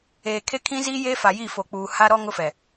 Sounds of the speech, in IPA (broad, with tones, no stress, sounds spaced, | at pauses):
eː˨ kʰ e˦ kʰ ĩ˦ z iː˦ j eː˦ f a˨ j i˦˨ f o˨ k͡p uː˨ h a˦ ɾ ɔ˦ ŋ ʊ˦ f ɛ˨